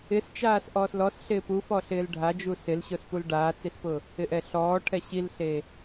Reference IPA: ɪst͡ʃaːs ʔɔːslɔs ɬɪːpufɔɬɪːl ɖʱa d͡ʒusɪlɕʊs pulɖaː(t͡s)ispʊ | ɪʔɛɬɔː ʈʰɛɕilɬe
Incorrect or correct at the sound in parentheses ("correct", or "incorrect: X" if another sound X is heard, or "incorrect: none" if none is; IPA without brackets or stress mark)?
correct